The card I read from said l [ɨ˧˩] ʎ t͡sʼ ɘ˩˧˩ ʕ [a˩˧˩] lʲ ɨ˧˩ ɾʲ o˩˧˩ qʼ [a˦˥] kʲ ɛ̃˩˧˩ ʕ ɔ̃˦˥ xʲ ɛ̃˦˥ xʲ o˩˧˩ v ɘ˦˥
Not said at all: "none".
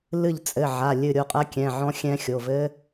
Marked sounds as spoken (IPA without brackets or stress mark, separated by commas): ɨ˧˩, a˩˧˩, ɐ˦˥